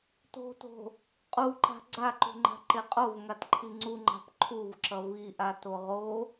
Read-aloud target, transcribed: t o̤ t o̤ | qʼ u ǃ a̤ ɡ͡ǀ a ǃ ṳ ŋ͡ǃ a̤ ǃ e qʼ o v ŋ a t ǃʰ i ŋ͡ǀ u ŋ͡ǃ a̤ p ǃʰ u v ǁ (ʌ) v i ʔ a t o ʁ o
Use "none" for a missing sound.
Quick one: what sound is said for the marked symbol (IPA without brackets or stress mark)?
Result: ʌ